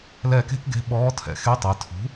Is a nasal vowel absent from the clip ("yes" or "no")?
yes